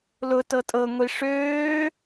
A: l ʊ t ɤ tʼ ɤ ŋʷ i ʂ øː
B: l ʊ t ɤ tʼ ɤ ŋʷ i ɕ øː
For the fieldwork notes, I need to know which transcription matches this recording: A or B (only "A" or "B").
A